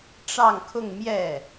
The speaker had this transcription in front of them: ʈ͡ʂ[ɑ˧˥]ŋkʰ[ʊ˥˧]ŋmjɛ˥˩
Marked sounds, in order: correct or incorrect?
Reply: incorrect: ɑ˥˧, correct

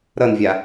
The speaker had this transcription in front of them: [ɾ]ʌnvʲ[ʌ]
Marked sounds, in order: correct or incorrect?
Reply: correct, incorrect: a

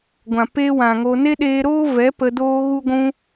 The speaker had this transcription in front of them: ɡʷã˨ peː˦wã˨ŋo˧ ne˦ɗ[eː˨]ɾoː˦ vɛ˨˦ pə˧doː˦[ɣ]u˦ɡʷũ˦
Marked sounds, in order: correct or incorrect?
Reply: incorrect: eː˧, correct

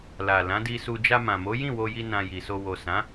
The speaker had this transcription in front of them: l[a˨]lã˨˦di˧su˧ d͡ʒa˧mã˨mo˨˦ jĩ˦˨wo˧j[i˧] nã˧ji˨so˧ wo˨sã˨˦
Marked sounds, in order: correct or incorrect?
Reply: correct, correct

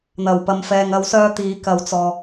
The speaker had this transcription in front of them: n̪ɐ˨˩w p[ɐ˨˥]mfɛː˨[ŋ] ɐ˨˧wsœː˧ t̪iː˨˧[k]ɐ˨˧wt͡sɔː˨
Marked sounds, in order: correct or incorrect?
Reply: incorrect: ɐ˨, correct, correct

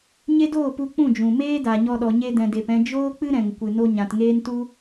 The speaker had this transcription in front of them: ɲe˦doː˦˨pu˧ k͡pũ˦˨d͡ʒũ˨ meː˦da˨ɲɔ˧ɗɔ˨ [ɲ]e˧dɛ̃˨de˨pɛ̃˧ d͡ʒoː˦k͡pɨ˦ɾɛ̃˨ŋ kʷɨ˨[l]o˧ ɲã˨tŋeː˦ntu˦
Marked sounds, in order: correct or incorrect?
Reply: correct, incorrect: n

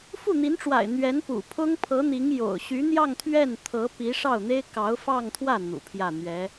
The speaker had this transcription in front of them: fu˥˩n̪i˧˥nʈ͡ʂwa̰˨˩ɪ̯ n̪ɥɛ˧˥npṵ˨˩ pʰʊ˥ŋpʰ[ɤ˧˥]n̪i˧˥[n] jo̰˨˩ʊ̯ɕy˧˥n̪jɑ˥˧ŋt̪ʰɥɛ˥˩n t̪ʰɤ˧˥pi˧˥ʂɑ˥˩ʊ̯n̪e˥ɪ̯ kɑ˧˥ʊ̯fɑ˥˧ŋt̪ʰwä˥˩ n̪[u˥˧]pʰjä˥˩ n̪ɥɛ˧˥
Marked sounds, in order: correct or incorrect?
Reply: correct, incorrect: ŋ, incorrect: ṵ˨˩

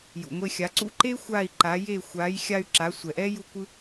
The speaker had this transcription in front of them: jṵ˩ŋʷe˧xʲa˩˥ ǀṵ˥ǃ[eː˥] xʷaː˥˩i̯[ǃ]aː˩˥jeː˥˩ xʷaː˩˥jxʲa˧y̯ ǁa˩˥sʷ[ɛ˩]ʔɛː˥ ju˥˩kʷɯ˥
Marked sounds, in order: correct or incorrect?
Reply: correct, correct, correct

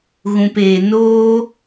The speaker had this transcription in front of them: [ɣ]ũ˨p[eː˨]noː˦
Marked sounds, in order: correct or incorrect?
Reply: correct, correct

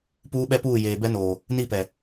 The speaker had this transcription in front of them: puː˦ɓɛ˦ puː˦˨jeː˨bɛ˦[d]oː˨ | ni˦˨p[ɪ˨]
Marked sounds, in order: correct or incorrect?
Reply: incorrect: n, incorrect: ɛ˨

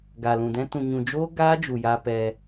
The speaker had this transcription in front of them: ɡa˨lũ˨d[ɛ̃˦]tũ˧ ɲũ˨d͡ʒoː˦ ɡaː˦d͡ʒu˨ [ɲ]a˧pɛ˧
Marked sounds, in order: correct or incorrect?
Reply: correct, incorrect: j

